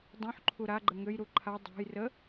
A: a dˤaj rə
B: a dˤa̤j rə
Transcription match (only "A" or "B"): B